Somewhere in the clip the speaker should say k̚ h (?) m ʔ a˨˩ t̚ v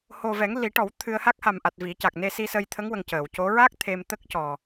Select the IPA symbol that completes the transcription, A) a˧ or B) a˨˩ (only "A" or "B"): B